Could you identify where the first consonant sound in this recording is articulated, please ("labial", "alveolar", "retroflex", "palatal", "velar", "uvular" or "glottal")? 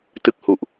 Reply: alveolar